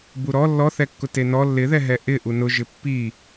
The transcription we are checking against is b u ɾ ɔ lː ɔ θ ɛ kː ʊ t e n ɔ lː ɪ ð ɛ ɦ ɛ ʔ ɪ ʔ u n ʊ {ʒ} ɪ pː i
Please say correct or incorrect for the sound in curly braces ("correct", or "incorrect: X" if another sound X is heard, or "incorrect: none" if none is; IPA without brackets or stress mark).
correct